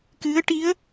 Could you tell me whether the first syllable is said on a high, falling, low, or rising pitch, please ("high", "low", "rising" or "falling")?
rising